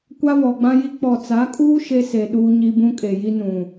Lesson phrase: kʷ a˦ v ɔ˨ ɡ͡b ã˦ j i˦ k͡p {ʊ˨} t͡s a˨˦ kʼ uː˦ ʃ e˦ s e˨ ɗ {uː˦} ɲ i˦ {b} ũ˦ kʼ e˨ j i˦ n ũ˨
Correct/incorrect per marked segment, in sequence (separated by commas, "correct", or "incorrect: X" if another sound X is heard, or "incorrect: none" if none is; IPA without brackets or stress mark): incorrect: ɔ˨, correct, correct